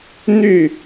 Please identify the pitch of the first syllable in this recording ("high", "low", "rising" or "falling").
falling